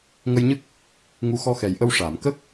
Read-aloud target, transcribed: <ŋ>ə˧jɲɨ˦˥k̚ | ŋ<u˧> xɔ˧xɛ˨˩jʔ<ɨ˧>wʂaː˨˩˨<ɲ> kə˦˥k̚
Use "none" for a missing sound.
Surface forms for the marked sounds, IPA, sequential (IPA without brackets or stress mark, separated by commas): ŋ, u˧, ə˧, m